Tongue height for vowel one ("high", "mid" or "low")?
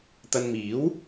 low